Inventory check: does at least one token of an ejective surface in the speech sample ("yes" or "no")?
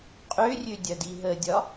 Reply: yes